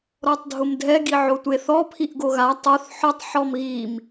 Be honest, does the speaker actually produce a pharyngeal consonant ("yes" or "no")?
yes